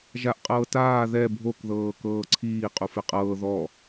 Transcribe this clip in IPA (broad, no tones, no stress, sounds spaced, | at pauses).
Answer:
ʒ a ʔ qʼ ɤː t aː ð ɛ bʱ o k ð ɤː k ɤː ǀʰ iː qʼ u f e qʼ ɤː ð ɔ